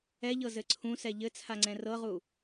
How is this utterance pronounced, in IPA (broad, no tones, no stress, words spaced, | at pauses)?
ɛʎɤzɘ ǀʰũsɛ ʎɘt͡sʰaŋ͡ǀɛ̃ rɤʁu